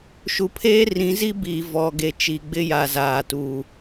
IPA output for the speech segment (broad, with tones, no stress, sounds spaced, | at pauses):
ʃ u˨ pʰ eː˦ r ĩ˨˦ z i˦ b iː˨ v ɔ˨ ɡ e˨ t͡ʃ i˨ ɡ͡b ɪ˦ j a˨ z aː˨ t uː˨